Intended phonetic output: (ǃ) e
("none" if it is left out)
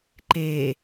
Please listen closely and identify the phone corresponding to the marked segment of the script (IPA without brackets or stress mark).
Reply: ǃ